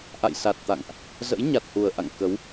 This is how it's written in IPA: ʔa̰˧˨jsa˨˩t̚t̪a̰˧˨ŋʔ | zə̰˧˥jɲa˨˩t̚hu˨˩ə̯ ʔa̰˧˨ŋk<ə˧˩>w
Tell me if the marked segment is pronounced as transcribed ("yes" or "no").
no